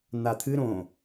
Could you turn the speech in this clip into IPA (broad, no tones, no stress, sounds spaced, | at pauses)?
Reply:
n̪ a t̪ʰ ɨ ɾ õ